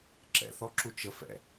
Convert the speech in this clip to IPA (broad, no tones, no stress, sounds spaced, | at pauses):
ǁ ɛ̰ θ ɔ ǁ u t͡ʃ ə f ɛ̰